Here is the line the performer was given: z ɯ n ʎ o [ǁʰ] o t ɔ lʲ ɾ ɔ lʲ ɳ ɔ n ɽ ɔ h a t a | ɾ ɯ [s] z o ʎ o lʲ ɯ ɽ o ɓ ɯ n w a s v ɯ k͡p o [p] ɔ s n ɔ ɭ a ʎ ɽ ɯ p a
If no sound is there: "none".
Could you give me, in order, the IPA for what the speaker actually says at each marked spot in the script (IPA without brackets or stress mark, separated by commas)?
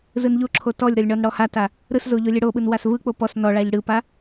ǁʰ, s, p